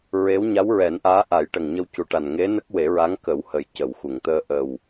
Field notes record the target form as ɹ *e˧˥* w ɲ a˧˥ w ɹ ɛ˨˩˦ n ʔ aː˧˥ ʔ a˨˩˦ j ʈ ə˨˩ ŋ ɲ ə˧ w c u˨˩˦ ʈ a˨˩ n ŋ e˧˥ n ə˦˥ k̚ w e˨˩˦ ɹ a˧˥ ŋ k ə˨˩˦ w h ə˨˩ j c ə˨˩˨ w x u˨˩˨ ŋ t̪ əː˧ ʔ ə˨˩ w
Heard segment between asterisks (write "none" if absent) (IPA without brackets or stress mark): e˧˥